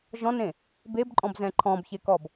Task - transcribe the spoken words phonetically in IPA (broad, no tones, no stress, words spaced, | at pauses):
ʒɔ̃nẽ | bebǃʼɔ̃bzɛ̃ ǃʰɔ̃bçekɔb